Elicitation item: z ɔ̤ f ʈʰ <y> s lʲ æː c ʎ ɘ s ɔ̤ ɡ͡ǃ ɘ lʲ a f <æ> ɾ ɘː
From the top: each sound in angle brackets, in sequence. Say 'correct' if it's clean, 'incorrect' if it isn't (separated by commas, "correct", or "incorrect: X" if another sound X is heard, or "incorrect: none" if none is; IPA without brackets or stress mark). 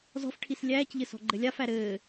incorrect: i, correct